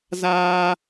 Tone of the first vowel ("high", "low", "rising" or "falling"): high